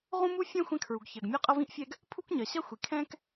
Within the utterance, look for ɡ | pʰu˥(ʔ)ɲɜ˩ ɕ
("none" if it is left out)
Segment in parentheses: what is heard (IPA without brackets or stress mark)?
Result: k